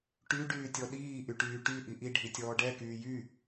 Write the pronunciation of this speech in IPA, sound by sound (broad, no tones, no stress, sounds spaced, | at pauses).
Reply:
ʈ y ɖ yː tʲ ɔ ɗ iː ʔ y ʈ yː ʈ y ʔ i ʔ i ɖʱ i tʲ ɔː ɖ ɛ k yː j y